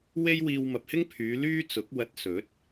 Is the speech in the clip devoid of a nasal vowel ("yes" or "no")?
yes